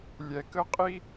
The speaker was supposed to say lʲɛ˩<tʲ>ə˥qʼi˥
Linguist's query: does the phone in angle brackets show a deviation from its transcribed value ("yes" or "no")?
yes